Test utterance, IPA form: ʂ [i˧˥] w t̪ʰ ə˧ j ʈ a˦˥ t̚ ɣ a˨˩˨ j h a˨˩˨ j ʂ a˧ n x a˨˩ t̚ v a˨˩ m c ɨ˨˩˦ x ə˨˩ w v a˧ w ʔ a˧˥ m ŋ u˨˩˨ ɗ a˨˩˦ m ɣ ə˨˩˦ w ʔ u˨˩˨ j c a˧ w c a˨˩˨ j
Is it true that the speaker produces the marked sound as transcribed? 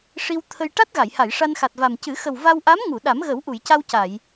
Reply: no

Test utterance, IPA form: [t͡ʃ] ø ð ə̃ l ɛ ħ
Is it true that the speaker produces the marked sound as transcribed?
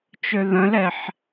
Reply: yes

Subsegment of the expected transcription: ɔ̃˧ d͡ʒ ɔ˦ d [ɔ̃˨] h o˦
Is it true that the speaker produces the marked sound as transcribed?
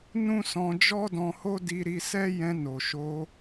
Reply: no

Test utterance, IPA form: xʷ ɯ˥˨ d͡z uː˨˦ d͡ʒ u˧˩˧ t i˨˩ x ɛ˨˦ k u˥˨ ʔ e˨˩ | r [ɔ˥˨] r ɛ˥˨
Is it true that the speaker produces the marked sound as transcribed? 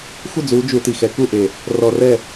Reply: no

